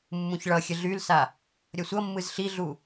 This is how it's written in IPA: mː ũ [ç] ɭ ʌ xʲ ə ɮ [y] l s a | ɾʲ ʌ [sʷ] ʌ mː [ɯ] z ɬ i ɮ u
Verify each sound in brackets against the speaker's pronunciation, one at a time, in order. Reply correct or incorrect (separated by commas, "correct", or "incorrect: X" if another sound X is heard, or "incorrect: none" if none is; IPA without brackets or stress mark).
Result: correct, correct, correct, correct